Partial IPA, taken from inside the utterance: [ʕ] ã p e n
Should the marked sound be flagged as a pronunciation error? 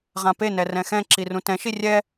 yes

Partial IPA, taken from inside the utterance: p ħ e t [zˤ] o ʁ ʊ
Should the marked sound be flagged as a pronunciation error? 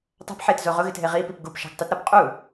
yes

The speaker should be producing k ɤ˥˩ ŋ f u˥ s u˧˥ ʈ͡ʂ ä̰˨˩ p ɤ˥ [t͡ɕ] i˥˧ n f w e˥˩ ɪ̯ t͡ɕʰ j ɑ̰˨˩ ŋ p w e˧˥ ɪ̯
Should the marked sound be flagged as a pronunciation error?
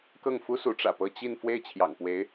no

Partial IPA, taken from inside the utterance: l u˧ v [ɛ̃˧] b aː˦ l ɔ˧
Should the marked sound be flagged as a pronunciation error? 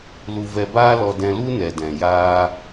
yes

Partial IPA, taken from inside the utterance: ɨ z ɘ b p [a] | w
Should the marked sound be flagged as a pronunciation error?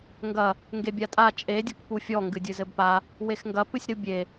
no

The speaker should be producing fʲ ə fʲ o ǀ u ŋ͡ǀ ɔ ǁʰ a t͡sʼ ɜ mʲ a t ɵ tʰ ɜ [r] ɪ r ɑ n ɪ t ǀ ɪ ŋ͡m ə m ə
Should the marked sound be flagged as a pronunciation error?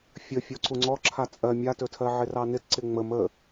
yes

